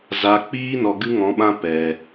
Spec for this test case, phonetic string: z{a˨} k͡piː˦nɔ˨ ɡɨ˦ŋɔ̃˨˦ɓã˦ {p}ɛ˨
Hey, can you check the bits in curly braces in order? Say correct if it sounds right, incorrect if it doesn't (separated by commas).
correct, correct